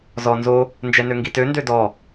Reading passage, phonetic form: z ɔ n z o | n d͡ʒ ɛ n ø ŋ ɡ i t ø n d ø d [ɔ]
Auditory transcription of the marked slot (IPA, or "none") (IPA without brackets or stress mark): ɔ